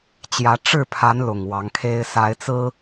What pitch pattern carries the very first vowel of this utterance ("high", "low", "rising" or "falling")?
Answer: rising